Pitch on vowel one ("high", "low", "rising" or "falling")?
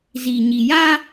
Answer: low